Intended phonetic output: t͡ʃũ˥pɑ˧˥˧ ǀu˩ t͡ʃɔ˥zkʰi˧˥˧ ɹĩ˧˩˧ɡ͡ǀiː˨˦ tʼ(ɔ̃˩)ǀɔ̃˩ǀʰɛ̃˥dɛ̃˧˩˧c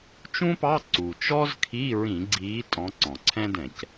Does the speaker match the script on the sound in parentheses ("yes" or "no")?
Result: no